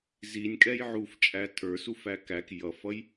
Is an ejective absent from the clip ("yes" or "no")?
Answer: no